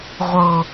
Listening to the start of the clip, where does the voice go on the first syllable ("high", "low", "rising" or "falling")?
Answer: low